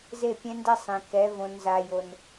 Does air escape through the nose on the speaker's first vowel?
no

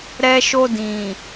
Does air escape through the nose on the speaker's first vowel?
no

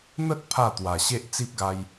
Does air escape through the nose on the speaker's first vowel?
no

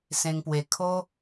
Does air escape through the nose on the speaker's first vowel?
yes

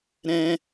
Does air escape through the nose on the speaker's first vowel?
yes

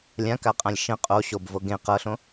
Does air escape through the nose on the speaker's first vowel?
yes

